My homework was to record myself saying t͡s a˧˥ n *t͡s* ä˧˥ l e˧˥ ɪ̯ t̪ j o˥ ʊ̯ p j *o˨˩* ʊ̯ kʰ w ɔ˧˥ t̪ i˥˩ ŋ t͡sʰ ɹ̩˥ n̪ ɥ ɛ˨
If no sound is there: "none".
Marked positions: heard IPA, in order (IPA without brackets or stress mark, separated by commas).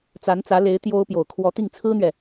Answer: t͡s, o˨˩